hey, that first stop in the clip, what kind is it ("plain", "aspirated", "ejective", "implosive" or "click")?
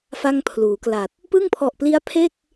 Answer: aspirated